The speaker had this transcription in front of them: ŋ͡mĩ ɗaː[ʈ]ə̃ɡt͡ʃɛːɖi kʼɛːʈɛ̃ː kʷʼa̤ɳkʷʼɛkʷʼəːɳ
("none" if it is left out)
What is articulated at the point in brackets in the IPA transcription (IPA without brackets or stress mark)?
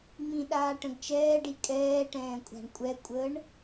ʈ